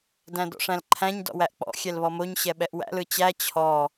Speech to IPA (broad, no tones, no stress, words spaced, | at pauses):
dæ̃dɔ̰ʂæ̃lǃʰæ̃ɲ dɔ̰wæʔk͡pɔ̰ xʲɛlβɔmoɲ ɕɛɓɛʔwæ̰l ɯt͡ɕæ t͡ɕʰɔ